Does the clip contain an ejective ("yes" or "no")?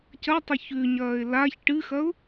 no